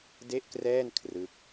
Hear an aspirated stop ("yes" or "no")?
yes